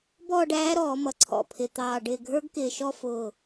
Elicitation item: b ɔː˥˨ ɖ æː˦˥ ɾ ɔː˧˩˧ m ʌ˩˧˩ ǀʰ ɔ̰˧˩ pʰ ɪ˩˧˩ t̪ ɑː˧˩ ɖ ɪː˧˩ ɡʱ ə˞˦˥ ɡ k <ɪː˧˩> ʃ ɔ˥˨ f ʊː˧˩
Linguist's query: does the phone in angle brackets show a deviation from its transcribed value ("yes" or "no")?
no